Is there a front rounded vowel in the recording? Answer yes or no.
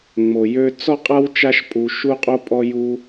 yes